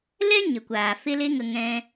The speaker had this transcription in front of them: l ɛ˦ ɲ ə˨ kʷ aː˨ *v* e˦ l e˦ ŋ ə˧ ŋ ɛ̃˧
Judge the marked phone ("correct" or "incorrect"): incorrect